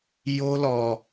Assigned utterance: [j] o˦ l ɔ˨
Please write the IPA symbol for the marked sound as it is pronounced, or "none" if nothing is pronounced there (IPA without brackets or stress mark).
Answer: j